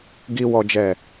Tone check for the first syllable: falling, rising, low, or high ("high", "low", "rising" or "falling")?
high